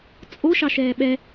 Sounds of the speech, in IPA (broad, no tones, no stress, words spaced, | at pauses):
t͡sʼoʃɑ ʃɛːɓɛ